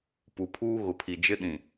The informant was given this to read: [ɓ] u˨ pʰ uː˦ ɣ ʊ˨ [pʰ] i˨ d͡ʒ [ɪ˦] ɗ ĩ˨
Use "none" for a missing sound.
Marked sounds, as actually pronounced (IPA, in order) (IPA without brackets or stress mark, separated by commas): p, pʰ, ɪ˦